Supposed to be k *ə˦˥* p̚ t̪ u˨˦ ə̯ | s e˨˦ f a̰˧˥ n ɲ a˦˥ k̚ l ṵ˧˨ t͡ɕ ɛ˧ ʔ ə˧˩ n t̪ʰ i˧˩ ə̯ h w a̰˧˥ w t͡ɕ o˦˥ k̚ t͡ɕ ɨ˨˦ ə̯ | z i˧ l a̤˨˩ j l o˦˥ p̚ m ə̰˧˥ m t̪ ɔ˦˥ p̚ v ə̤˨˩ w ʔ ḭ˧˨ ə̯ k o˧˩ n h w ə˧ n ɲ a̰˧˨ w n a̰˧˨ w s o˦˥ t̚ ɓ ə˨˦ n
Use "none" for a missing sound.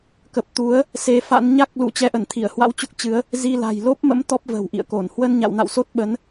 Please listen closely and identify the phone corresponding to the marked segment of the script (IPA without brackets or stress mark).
ə˨˩